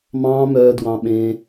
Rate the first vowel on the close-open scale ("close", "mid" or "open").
open